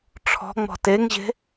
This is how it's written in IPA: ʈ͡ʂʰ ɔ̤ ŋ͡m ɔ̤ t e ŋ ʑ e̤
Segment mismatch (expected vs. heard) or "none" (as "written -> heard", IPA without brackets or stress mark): none